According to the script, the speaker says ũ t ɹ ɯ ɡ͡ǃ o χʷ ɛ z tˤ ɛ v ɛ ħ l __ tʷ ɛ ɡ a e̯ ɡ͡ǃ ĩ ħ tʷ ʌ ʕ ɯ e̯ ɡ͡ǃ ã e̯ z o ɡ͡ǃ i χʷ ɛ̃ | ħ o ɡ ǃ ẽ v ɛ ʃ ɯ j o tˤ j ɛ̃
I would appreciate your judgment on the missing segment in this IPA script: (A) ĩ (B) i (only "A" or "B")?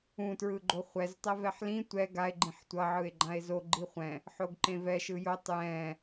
A